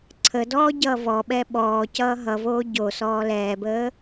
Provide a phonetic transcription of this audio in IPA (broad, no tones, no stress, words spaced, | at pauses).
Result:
ǀʰədɔː ɟʌːvɔɓɛ ɓɔːcʌː ɦʌvoː ɟo sɔːlɛːbəː